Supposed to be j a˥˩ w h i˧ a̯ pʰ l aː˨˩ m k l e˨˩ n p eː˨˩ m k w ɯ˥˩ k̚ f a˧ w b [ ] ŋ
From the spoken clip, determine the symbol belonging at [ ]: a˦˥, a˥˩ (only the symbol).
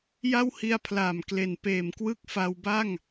a˥˩